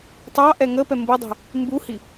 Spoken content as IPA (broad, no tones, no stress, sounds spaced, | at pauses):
tˤ ɑ ʔ ɛ ŋ ə p ɛ m b u dˤ ṳ | m b u h i